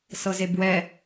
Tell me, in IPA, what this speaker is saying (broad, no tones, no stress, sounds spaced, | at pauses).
s ɤ z e b w ɛ